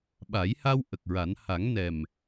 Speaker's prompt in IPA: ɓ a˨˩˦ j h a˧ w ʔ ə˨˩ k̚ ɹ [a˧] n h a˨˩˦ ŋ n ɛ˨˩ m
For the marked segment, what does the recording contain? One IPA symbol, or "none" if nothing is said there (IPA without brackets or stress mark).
a˨˩˦